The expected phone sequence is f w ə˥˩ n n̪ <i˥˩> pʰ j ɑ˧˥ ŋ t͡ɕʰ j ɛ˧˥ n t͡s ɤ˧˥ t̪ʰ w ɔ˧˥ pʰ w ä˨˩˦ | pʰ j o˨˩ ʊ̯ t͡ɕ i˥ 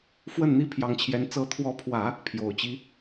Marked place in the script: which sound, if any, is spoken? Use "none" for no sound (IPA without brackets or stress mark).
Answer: i˥